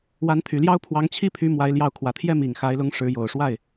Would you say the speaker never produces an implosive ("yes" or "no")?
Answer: yes